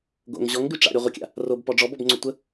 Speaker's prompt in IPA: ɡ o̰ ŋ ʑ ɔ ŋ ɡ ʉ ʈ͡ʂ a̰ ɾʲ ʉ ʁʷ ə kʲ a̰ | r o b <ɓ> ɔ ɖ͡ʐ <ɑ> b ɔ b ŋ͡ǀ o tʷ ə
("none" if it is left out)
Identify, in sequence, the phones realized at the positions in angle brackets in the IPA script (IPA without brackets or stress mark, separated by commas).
p, ɔ